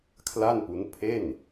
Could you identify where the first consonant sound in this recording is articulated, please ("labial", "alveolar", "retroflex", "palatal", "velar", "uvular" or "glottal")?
velar